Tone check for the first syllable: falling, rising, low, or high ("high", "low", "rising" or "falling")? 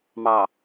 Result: low